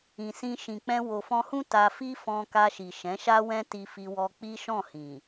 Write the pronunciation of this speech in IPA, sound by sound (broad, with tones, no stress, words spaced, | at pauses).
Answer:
ĩ˨sĩ˧ ʃĩ˨k͡pɛ̃˧ wo˨fɔ̃˧hũ˦ ta˧fi˦ fɔ̃˧ka˧ʃi˨ ʃɛ̃˨˦ʃa˦wɛ̃˦ ti˧fi˧wɔ˧ k͡pi˦ʃɔ̃˦˨hĩ˨